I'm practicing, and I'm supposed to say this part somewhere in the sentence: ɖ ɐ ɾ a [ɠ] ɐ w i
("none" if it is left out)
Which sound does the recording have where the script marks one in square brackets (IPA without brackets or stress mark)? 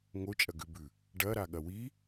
ɠ